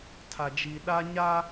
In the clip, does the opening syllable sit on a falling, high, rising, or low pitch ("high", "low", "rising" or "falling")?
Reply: low